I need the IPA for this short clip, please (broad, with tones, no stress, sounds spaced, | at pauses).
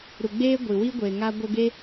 ɾ u˨ ɡ͡b eː˦ ɡʷ i˨ w i˦ ɡʷ eː˨ ŋ a˦ ɡʷ ə˧ ɡ e˦